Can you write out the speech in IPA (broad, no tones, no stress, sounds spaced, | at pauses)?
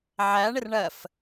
ʕ æ ɳ ɪ r ɳ ɜ f